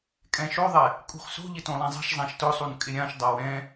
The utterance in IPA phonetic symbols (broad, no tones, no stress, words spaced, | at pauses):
kʼɛ̃ʃoðˤɛ | kʼṳχso̤ʎɪ tõlˠẽzˤɛ̤ʃzˤãʃ tʊsˤun kʼɪɾʲãʃdˤaw ɛ̃